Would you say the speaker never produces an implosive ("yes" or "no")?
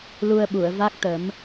no